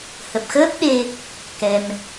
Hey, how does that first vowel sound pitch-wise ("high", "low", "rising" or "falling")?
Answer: low